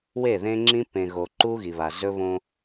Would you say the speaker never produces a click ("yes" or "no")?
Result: no